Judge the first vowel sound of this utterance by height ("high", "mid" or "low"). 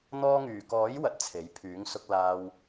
mid